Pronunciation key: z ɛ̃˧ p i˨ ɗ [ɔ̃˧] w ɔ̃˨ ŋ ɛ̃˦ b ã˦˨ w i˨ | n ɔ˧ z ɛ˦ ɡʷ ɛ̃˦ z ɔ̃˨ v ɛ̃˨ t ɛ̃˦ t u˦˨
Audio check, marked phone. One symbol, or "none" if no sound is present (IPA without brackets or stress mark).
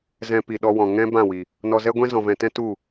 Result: ɔ˧